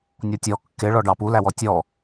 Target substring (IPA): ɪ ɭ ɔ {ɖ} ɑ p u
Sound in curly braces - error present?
no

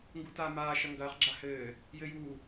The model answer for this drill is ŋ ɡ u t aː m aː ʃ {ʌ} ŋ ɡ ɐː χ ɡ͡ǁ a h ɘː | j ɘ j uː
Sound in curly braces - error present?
no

